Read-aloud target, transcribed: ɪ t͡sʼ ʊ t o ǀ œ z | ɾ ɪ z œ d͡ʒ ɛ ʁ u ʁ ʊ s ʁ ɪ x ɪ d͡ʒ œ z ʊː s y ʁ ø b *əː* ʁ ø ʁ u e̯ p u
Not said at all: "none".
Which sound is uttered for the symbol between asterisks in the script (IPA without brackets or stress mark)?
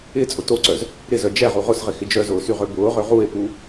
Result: ʊː